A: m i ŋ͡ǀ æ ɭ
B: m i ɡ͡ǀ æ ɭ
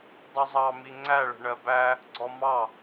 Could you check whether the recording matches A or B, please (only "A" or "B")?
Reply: A